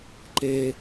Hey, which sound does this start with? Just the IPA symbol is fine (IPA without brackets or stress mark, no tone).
ǃ